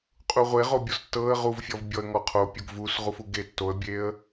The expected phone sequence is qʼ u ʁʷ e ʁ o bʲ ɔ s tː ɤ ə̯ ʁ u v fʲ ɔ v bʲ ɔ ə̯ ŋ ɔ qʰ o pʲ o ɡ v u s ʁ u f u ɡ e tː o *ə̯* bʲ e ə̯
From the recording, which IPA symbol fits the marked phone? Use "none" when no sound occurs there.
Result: ə̯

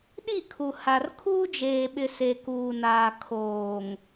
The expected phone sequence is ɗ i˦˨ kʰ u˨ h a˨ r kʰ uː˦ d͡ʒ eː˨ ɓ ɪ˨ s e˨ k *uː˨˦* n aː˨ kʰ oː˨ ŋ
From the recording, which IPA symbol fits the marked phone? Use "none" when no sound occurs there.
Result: uː˨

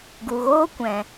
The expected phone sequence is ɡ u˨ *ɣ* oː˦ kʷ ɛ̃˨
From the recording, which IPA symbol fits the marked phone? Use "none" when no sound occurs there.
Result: ɣ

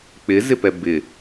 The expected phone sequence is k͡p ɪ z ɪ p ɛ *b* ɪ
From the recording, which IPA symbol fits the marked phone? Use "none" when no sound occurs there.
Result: b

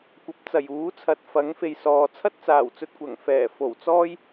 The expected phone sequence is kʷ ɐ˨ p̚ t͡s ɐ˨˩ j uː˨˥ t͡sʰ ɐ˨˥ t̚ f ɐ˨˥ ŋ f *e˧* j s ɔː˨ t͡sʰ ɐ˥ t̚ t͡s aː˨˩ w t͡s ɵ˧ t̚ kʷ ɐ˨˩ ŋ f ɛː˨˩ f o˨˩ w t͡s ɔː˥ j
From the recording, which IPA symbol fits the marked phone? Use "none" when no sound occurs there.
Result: e˨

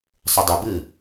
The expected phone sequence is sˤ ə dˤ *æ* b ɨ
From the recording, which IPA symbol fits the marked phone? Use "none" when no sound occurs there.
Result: ə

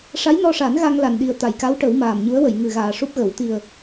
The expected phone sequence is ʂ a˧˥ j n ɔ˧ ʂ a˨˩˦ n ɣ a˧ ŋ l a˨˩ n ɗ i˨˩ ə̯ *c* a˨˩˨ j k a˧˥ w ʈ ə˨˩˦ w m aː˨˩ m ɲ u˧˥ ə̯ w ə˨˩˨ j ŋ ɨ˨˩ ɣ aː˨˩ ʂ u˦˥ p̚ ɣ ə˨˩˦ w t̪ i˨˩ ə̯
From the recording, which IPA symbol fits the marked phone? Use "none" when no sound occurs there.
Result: t̪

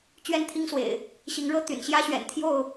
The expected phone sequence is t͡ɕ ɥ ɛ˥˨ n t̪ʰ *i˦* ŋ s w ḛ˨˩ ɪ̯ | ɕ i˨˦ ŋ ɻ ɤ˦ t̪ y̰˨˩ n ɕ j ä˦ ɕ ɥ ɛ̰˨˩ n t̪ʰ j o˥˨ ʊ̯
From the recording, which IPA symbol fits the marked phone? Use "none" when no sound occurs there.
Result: i˦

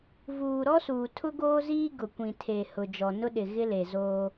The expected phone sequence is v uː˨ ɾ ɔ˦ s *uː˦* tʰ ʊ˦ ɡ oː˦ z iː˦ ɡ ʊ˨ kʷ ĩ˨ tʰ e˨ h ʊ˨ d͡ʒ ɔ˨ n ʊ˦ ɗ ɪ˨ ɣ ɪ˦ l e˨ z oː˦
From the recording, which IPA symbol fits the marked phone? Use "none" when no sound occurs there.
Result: uː˨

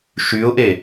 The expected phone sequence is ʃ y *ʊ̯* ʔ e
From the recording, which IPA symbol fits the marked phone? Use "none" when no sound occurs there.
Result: ʊ̯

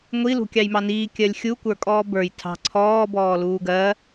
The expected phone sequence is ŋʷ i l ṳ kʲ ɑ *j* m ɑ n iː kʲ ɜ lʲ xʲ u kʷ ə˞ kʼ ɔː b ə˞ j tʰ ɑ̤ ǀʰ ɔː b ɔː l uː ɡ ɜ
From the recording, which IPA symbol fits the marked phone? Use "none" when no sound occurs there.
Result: j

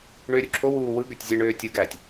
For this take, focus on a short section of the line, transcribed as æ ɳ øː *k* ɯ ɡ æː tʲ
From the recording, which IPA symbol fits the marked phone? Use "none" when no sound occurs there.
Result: tʲ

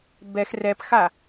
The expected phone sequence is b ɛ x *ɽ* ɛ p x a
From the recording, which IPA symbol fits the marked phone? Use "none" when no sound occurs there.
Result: r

